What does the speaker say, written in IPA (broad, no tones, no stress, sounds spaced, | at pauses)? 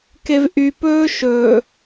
k e v ʔ y p ɵː ʃ ɵ